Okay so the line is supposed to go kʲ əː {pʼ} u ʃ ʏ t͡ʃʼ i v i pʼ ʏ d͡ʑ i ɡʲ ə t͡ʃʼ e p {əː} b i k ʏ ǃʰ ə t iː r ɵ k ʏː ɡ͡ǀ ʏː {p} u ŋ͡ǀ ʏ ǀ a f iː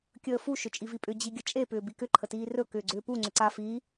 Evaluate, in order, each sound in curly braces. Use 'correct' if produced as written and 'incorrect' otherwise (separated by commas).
incorrect, incorrect, correct